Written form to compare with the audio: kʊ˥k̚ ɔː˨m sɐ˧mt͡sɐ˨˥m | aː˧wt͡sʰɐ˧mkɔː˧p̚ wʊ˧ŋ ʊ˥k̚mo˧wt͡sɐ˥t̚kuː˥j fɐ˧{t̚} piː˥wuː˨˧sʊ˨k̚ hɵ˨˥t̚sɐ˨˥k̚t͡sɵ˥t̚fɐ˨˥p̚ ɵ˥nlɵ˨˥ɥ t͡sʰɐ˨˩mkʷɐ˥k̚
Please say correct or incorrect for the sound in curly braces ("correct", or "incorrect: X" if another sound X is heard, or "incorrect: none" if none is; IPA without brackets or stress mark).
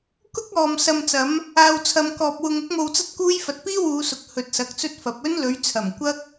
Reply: correct